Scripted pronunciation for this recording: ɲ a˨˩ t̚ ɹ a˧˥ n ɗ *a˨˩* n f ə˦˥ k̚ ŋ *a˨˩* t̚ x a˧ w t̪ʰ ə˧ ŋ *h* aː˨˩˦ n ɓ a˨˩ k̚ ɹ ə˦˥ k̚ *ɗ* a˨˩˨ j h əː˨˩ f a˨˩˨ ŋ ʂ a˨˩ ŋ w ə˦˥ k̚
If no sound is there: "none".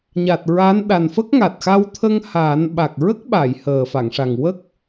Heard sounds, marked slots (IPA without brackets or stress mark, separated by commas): a˨˩, a˨˩, h, ɓ